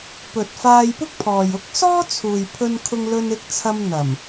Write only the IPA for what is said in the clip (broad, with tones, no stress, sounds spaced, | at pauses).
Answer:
p ɵ˨ t̚ f aː˧ j p ʊ˥ k̚ pʰ ɔː˨ j ʊ˥ k̚ s ɔː˥ t͡sʰ uː˨ j pʰ ɵ˧ n kʰ ʊ˧ ŋ l ɵ˧ n ɪ˧ k̚ t͡sʰ ɐ˧ m n̪ ɐ˨˩ m